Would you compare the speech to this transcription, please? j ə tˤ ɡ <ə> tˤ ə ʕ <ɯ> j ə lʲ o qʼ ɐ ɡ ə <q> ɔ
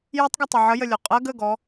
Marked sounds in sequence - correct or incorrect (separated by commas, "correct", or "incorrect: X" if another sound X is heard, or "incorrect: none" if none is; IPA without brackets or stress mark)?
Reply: correct, incorrect: ə, incorrect: ɡ